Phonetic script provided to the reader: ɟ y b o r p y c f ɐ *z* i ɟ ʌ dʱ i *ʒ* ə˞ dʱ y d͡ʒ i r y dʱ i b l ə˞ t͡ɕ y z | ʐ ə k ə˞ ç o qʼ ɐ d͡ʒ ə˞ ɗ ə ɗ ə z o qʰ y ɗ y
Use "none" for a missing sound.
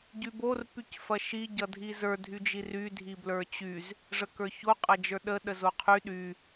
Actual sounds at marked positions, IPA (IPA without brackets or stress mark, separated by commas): ʃ, z